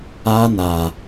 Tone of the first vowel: high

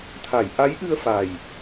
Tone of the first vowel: low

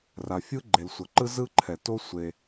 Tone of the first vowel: low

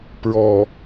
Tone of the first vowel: low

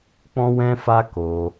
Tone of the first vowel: high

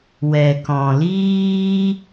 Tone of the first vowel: low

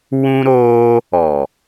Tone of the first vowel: high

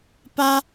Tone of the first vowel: high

